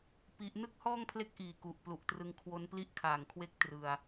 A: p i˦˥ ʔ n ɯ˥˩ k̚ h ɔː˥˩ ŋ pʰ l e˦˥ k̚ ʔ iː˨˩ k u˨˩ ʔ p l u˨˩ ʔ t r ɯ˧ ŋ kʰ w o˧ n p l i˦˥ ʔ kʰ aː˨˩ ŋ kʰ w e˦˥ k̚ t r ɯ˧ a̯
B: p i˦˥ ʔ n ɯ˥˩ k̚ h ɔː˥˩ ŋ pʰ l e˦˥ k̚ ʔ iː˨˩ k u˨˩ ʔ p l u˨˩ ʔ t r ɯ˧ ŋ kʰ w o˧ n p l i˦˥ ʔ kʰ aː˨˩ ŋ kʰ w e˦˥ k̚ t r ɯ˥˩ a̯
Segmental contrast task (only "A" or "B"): A